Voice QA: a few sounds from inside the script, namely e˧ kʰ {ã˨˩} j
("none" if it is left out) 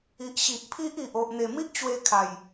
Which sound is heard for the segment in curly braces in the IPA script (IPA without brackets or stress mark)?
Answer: a˨˩